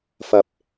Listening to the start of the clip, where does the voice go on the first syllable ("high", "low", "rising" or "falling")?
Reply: low